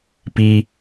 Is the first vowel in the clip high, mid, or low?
high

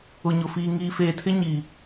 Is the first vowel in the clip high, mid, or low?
high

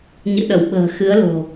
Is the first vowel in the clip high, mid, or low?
high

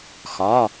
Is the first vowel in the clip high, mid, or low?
low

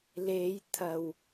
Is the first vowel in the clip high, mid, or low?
mid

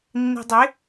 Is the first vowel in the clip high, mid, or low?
high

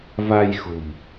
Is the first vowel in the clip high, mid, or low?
low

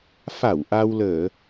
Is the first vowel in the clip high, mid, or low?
low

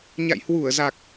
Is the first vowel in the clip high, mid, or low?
low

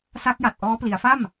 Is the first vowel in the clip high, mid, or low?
low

